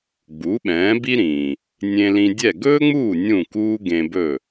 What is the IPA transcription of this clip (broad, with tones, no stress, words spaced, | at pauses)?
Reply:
ɡ͡bu˩˥ɓɛ̃ː˩˥ bi˥ɾĩː˩ | nʲẽ˧lĩ˧dʲɛ˥˩ ɡɵː˥ŋ͡muː˥˩ nʲũ˥˩kuː˥ɡẽ˧bɵ˥˩